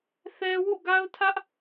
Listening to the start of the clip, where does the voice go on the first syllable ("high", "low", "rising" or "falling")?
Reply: high